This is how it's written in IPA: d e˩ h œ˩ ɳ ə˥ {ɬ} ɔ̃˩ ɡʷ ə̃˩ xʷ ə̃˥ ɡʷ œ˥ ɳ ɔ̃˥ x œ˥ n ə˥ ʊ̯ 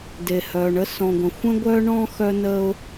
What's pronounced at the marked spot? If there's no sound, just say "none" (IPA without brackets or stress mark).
s